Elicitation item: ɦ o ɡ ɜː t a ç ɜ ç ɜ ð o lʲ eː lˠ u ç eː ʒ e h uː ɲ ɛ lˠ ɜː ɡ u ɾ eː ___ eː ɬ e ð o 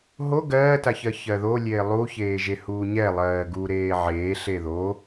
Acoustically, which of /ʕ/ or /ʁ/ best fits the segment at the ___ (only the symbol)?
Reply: ʕ